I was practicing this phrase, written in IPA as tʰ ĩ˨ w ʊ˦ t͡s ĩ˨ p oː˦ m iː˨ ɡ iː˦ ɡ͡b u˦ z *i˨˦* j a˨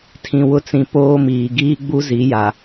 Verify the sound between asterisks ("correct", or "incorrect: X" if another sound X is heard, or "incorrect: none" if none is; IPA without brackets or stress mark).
correct